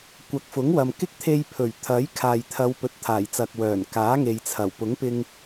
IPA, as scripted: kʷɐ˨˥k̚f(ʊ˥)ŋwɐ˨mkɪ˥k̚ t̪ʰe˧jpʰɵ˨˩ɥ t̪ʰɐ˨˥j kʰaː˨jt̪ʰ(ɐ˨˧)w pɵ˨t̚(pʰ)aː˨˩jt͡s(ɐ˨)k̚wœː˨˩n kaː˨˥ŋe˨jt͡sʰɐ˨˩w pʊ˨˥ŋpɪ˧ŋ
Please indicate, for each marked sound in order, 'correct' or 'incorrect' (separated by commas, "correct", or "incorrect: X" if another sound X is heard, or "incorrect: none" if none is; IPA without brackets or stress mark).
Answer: incorrect: ʊ˨˥, correct, incorrect: t̪ʰ, correct